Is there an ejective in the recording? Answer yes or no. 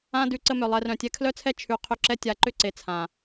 no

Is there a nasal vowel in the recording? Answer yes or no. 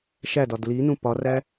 yes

